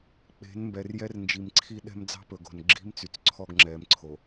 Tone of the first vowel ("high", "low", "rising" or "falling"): rising